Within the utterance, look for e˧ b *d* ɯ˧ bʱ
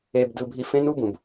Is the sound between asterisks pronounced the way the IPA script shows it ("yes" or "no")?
yes